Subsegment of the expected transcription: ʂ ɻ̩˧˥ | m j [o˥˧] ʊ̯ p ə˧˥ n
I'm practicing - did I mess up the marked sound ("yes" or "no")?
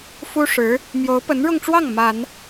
yes